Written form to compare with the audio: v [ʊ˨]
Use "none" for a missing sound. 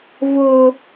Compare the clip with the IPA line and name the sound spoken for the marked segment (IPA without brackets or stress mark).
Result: ʊ˨